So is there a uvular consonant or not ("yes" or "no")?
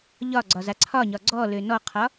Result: yes